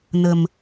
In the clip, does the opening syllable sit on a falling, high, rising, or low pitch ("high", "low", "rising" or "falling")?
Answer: low